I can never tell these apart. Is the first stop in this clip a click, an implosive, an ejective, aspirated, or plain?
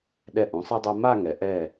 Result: implosive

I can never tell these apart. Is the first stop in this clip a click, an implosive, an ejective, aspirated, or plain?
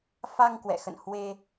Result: plain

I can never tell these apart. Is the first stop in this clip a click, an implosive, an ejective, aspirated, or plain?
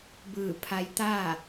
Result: plain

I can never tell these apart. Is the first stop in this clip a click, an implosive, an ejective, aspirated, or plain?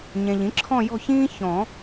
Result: click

